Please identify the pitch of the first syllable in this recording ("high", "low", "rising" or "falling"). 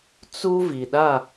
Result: high